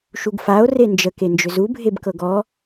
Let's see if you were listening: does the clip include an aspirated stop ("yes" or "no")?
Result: no